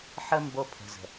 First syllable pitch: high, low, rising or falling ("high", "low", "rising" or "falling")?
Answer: high